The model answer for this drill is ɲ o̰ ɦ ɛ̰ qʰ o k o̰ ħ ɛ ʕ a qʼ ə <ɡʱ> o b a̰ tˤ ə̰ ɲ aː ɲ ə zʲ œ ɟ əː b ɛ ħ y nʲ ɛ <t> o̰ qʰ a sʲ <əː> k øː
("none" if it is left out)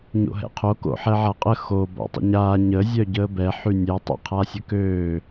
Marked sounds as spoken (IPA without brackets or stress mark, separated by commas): x, tˤ, ə